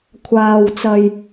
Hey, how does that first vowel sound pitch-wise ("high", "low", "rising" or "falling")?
low